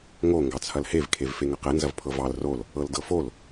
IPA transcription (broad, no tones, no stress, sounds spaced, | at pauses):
ŋ o ŋ ɡ ɑ t͡sʰ ɐ l h e v kʰ e v f e ŋ ɐ q ɛ n z ɐ v pʰ ɤ v ɑ l r o l | ɤ l d ɤ f o l